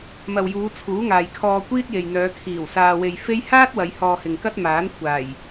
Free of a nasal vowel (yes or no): yes